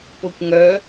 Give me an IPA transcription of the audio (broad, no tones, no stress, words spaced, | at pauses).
pokʷŋœ